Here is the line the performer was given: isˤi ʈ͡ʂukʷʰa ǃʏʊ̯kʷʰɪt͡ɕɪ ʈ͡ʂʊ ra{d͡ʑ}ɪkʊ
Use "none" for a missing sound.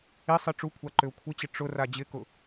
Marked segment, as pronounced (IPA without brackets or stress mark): d͡ʑ